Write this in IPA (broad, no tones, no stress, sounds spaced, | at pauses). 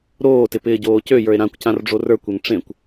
ɾ oː t ɪ p ɪː ɟ oː c ø j ə˞ e̯ ɾ ã kʷ c ã r ɖ͡ʐ o r ə˞ kʷ ø ŋ ʈ͡ʂ ẽ kʷ